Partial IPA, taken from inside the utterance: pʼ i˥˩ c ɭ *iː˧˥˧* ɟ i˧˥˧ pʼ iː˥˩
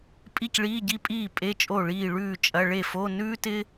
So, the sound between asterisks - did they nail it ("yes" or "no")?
yes